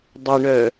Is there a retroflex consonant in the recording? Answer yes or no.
yes